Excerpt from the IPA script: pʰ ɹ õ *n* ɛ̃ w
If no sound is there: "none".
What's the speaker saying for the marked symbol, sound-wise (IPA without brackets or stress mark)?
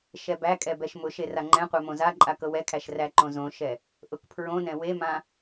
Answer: n